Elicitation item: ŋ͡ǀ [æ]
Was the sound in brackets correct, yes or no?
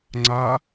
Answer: no